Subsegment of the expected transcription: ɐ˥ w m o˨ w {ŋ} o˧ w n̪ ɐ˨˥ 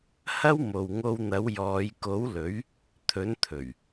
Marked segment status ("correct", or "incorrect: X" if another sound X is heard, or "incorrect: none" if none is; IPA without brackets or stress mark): correct